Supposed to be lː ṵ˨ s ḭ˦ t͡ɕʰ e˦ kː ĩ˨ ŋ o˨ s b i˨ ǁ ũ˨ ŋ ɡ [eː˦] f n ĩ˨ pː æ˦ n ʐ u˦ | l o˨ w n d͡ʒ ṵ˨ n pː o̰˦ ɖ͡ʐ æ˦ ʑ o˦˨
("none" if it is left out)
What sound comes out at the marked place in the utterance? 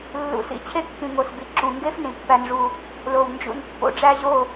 e˦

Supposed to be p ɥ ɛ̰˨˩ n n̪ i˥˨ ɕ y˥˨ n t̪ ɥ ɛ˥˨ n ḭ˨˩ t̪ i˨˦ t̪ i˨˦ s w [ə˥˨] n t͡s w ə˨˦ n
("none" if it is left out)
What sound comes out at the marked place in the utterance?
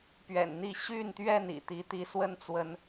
ə˦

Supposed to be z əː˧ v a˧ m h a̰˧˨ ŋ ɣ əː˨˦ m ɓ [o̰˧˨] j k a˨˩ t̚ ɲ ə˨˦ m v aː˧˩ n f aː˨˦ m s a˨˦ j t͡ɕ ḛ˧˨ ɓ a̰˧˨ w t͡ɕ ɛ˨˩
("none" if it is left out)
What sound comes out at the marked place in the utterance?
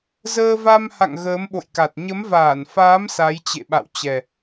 o̰˧˨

